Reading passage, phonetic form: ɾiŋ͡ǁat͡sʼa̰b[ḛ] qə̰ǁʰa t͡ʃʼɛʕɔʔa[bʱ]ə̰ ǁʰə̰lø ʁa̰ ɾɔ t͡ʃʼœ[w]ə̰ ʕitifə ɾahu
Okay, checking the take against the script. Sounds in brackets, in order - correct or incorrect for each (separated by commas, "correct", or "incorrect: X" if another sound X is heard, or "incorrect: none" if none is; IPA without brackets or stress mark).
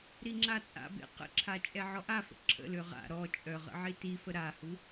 correct, incorrect: f, incorrect: ʁ